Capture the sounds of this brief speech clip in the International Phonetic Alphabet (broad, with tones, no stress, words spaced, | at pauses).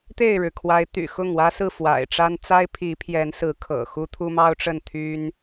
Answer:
t̪e˥˨ɪ̯ɻɻ̩˩kʰwa˨˦ɪ̯ t̪y̰˨˩xʊ˥˨ŋ wä˦sɹ̩˥˨ fwa̰˨˩ɪ̯ʈ͡ʂa˦n t͡sa˦ɪ̯pʰi˨˦pʰjɛ˨˦nsɹ̩˨˦ kʰɤ̰˨˩xu˦ t̪ʰu˦mɑ˦ʊ̯ʈ͡ʂə˥˨n t̪ʰy˦n